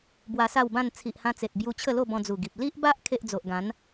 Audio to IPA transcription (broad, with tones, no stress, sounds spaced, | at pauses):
b w a˧ s a˥˧ w b ã˥˧ n t͡sʰ i˨ ʔ h ã˧ t͡s e˨ t̚ b j u˧ t͡ɕʰ ə˥˧ l o˥˧ b ɔ̃˧ d͡z u˨˩ ɡ i˨ p̚ l i˦ ʔ b a˦ ʔ kʰ e˦ ʔ d͡z o˨ ʔ ɡ ã˨˦ n